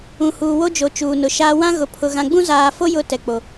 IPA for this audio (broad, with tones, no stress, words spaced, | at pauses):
ũ˨huː˨wo˦d͡ʒo˨ t͡ʃuː˨nʊ˨ ʃaː˨ wã˦ɣʊ˨pʰʊ˨ ɣã˨ɡ͡bũ˦zaː˨fo˦ jʊ˦ tɛ˨k͡po˨